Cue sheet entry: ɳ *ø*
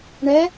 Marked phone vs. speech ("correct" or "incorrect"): incorrect